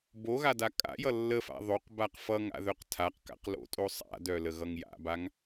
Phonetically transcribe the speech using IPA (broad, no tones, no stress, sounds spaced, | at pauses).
b o ɣ a d a kʼ a̰ j ʌ lː ə f a̰ ðˤ o q b a q f ʌ ŋ a̰ ð œ q tʰ a q k a̰ q l o̰ tʼ o sˤ a̰ d œ l ə ɣ ʌ ŋ j a̰ b a ŋ